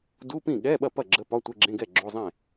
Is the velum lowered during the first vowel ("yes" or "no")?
no